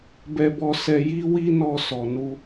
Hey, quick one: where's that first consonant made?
lips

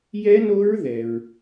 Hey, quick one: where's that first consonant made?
palate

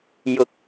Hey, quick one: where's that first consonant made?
palate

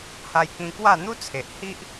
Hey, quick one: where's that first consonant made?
throat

